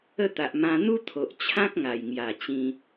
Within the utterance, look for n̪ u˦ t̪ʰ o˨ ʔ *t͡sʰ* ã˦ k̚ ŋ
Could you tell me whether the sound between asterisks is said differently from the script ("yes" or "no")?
yes